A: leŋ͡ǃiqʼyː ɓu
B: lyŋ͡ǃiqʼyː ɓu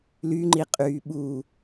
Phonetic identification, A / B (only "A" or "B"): B